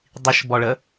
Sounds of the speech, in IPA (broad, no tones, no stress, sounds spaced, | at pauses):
dˤ i ʃ b ɔ ɭ ə